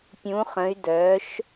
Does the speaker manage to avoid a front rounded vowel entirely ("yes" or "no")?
no